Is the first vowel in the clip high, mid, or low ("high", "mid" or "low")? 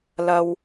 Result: low